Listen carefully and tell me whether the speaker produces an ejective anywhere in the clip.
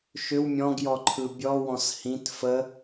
no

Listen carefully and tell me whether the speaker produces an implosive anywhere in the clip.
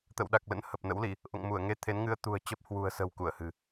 yes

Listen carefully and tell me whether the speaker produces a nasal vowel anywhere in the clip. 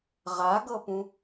yes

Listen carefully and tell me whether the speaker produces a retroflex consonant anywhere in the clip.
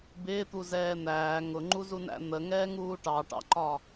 yes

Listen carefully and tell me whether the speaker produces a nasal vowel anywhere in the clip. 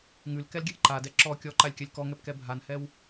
no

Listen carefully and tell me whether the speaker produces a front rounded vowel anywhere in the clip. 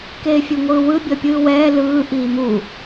no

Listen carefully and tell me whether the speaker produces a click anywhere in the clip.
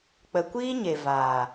no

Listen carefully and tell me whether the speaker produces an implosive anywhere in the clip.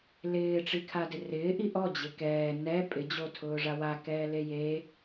no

